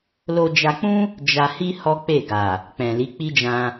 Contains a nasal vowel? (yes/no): yes